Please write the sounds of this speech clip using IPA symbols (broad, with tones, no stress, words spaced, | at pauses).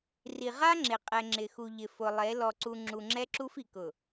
ri˨ʁa˦ŋ͡ǁɪ˨qʼɛ˨ ŋ͡ǁɪ˨xu˨ʎɪ˨ fʊ˨lˠe˨˦ lɔ˨ǀu˨ŋ͡ǁu˨ ŋ͡ǁɛ˦ǁu˦fi˨ kʊ˨